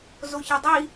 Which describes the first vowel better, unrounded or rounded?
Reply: rounded